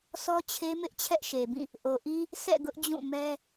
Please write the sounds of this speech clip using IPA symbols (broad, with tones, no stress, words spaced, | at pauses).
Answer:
sɔ˦t͡ɕʰe˦mɪ˦ʔ t͡ɕʰɛ˦ʔʃe˨bĩ˦˨ | ʔo˨ʔi˦ | sʰɛ̰˦˨ɡʊ˦ʔd͡ʑũ˦˨ mɛ˦